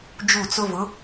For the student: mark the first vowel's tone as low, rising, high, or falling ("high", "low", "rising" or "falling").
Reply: falling